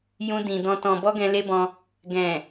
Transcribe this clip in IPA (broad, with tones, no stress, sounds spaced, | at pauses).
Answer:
j ũ˧ d ĩ˨ d ɔ̃˧ t ɔ̃˨ b ɔ˧ ɡ ɛ̃˧ l e˦ b ɔ̃˧ | ɡ ɛ̃˨